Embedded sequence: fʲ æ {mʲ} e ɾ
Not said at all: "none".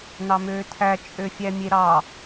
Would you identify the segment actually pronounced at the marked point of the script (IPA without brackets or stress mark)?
mʲ